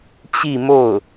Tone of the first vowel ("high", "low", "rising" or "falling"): falling